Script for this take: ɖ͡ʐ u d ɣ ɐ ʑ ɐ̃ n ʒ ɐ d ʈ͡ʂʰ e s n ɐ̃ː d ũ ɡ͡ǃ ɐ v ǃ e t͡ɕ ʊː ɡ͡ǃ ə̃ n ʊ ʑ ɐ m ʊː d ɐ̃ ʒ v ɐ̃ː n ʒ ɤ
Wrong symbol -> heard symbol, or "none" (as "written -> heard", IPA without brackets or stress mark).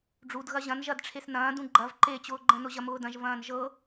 none